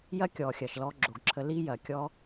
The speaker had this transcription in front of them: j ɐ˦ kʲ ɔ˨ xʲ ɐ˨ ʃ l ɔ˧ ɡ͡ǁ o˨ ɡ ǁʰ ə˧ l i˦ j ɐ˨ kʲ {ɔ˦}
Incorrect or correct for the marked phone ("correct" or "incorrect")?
correct